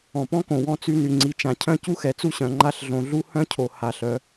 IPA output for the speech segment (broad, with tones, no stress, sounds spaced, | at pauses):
ɔ̃˨ p ɔ̃˦ k õ˨ w ɔ̃˦ t͡s y˦ n y˨ ŋ͡ǀ i˨ t͡ʃ ã˨ cʰ œ̃˦˨ c u˦ x ɛ˨ t͡s u˦ ɕ œ̃˨ ŋ͡ǃ a˦ ɬ ɮ õ˨ ɮ u˦ h œ̃˦ cʰ o˨ h a˨ ɬ œ˨˦